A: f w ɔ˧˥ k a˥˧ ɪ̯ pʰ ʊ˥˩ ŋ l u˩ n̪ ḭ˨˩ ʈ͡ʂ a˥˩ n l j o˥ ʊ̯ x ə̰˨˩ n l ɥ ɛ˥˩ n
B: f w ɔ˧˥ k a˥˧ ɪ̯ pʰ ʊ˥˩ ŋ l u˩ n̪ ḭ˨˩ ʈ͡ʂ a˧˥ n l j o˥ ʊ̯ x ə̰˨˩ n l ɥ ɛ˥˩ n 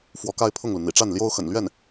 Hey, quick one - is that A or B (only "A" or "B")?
A